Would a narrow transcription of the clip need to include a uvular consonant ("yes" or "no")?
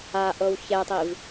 no